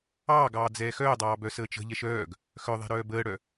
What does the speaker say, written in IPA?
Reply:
ɑːɡɑː d͡zɛːxœːdˤɑː bœsəːt͡ʃə̤ʎɛʃ œːɡ | xœðˤɛ̤ ɾœːbəːɽœ

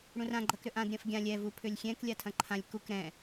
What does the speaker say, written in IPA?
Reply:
ɽũrã ɡ͡ǃɐkɾʏʔãd ɾʲɐ̃fɡʲã lʲɛ vupʰʏlʲxʲɛ̃k lʲatʰɐ̃ǃʰãlʲ kuk ɾɛ̃

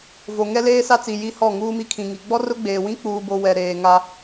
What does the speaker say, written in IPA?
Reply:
vo˨ ŋɛ˦leː˦sa˦t͡si˨ ji˦hɔ˦˨ ŋuː˦mi˦kʰĩ˨ŋi˨ ɡ͡bɔ˦rʊ˦ɡ͡beː˨wĩ˦ k͡puː˦bo˦ wɛ˨ɾeː˨ ŋa˦

